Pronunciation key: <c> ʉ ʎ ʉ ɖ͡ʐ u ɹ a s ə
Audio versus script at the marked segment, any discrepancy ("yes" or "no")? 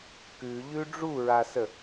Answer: yes